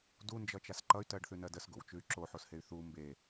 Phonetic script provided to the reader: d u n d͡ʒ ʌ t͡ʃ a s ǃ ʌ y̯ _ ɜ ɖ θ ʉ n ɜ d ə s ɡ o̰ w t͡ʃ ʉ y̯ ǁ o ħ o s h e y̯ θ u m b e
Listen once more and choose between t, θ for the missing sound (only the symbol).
t